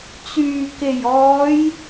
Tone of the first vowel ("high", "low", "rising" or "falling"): low